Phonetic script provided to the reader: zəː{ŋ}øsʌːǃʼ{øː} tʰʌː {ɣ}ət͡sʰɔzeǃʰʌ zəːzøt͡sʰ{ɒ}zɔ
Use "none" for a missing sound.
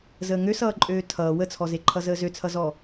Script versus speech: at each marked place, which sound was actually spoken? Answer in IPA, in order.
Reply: ŋ, øː, w, ʌ

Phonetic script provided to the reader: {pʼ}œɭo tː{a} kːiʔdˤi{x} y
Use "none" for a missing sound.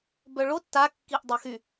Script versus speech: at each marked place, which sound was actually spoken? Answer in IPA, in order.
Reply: b, a, x

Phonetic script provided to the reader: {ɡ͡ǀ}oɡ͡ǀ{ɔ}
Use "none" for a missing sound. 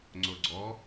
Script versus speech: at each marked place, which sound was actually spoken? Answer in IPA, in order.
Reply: ŋ͡ǀ, ɔ

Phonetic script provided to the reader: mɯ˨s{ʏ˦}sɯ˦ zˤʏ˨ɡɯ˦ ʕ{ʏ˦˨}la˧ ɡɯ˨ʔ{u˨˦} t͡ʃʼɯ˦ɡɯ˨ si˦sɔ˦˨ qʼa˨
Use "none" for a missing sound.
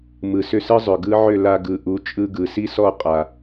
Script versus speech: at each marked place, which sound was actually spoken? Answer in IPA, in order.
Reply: ʏ˦, ʏ˦˨, u˨˦

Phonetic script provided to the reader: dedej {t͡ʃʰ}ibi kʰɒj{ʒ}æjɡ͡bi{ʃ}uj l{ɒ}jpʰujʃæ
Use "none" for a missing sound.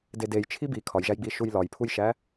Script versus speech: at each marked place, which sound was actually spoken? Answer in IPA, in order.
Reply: t͡ʃʰ, ʒ, ʃ, ɒ

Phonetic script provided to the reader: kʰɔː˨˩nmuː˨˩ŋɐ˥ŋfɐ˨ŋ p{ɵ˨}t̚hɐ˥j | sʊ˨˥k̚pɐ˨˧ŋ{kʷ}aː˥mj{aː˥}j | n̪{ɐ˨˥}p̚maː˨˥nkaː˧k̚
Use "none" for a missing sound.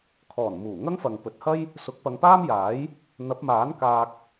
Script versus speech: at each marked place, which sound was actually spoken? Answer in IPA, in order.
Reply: ɵ˨, p, aː˨˥, ɐ˨˥

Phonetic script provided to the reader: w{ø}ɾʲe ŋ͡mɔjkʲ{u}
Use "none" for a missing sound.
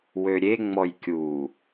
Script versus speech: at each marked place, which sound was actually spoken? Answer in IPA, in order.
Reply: ø, u

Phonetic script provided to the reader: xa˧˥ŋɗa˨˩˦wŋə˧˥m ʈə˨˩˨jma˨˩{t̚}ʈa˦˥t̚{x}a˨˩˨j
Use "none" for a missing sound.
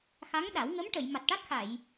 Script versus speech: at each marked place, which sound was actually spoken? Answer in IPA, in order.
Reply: t̚, x

